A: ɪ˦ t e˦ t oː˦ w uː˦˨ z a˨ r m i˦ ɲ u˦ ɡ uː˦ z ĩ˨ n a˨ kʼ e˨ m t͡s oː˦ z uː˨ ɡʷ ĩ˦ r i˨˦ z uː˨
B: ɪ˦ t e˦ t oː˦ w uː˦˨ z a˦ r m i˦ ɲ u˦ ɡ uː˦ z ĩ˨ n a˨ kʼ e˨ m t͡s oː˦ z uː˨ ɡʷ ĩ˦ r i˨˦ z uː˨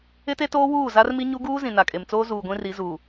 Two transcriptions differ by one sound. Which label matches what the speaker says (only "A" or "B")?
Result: B